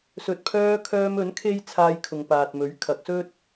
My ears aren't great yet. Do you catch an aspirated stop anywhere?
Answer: yes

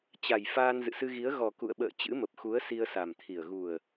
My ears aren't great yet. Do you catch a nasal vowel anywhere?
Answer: no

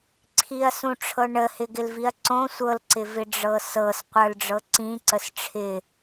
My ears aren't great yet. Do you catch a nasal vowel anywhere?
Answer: yes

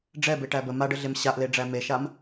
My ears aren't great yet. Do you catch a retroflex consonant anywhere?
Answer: yes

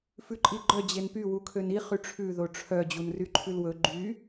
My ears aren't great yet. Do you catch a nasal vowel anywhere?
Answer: no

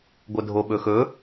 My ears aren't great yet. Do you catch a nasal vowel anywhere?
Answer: no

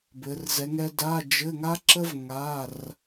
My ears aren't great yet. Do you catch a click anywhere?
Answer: yes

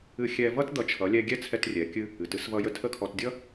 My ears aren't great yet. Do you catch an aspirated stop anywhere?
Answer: yes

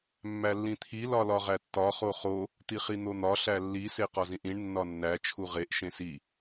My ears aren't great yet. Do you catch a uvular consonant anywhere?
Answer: yes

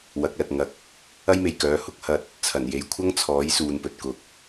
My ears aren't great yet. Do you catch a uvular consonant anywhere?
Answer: no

